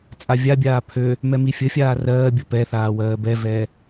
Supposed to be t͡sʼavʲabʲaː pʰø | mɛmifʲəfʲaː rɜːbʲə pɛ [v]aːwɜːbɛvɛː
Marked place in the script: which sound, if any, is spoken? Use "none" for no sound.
θ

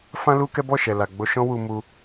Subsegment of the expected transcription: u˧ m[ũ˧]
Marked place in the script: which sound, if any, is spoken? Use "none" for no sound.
u˧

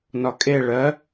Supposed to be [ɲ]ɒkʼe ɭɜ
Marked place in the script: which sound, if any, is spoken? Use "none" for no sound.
n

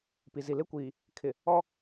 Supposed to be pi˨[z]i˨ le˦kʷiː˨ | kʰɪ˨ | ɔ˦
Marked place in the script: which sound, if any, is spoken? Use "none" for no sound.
z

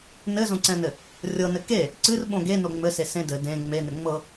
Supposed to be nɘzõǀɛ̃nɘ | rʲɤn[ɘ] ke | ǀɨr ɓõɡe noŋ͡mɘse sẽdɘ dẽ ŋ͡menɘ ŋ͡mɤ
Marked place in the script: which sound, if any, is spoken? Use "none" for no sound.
ɘ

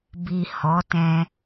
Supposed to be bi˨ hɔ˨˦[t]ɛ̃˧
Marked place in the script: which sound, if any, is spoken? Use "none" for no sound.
t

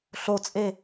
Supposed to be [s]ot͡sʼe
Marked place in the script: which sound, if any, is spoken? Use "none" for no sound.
ɬ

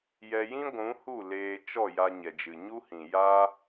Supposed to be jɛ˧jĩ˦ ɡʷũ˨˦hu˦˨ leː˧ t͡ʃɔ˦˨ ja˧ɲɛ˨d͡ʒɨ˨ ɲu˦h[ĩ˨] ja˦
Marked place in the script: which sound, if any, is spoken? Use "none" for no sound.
ĩ˨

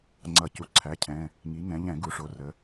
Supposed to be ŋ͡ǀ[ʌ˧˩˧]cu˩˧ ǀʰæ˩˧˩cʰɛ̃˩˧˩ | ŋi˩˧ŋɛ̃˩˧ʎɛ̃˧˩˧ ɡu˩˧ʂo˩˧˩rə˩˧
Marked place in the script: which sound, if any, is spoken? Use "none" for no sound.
ʌ˧˩˧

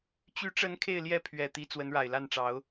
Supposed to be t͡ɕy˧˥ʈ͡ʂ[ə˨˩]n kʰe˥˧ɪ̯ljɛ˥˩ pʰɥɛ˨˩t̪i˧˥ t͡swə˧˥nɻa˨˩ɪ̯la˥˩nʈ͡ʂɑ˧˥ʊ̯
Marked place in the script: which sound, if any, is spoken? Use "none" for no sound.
ə˧˥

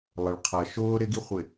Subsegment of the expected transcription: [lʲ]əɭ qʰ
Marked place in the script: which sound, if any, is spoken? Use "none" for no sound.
lˠ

